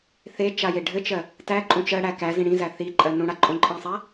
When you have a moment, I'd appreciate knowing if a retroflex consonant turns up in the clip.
yes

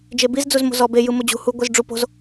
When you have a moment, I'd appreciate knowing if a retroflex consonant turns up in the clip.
yes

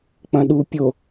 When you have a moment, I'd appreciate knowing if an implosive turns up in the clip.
yes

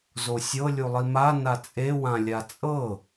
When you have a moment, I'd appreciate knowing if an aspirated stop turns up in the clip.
no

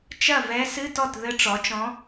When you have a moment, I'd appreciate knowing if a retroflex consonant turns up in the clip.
yes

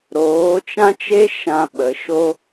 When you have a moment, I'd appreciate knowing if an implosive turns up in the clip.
yes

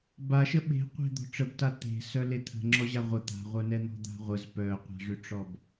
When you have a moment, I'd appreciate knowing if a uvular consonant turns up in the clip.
yes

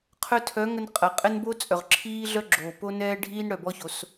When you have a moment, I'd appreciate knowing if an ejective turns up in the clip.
yes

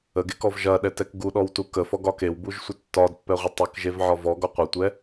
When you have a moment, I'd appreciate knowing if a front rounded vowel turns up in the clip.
no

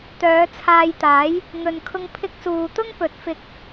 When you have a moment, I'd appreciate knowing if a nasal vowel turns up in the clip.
no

